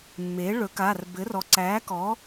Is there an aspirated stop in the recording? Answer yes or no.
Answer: no